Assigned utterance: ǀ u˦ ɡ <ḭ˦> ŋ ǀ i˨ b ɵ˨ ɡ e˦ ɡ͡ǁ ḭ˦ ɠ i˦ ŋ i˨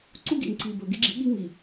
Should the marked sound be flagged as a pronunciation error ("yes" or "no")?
yes